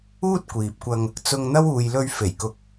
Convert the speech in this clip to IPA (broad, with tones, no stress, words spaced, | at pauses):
uː˥t̚kʷiː˨p̚kʷɐ˧ŋ | t͡sʊ˧ŋn̪ɐ˥w uː˨jlɵ˧ɥ fe˨˩jkʊ˨˥k̚